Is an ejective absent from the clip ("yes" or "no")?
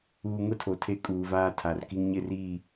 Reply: no